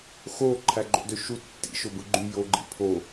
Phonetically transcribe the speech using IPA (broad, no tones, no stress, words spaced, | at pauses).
xo ǃʰæɡ͡ǃo̰døʃu tːḭʃobɯ ɡ͡ǃy joɡ͡ǃḭ pʰo